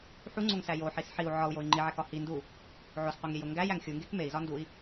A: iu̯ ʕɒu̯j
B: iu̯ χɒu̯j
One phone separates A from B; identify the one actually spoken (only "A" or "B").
A